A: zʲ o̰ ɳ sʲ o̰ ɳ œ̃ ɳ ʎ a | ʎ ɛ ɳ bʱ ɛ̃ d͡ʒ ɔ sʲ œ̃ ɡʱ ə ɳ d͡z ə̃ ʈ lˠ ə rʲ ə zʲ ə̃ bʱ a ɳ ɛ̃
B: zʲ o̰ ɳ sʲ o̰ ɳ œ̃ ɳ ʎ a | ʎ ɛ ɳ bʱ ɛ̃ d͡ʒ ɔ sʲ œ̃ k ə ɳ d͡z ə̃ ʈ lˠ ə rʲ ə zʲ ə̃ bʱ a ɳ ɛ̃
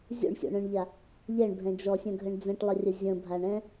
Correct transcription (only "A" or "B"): A